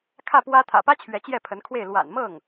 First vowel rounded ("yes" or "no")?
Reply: no